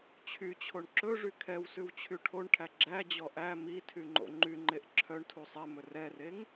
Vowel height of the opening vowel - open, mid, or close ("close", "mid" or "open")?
close